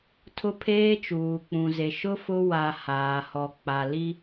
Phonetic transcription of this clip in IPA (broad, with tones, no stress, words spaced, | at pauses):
tʰʊ˦pʰeː˦ t͡ʃuː˨k͡pũ˨ ze˨ ʃʊ˦ fʊ˦ wa˨ haː˨hɔ˨ k͡pa˨li˦